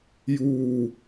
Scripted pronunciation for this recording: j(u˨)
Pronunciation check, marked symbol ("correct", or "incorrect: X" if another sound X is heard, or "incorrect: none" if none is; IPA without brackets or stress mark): incorrect: uː˨